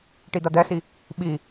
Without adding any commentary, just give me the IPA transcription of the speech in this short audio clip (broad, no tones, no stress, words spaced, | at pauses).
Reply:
ʈid̪ɐd̪ɛsi | ɓi